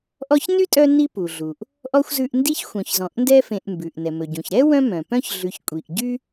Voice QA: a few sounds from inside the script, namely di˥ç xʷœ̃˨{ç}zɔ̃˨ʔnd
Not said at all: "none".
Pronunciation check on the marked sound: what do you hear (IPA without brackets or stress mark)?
ç